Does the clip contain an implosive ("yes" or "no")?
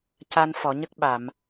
yes